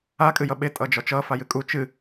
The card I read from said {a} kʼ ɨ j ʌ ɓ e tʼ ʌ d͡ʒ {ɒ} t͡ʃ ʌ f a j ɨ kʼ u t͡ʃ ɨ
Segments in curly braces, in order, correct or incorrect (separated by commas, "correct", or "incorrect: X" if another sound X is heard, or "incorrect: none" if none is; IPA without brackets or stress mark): correct, correct